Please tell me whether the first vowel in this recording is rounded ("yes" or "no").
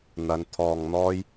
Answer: no